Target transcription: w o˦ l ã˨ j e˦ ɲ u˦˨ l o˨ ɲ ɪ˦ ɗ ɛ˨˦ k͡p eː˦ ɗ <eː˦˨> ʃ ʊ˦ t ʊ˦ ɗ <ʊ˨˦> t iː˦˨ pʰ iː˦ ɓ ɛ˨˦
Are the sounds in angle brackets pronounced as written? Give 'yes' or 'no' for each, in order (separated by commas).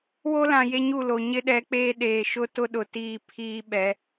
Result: no, no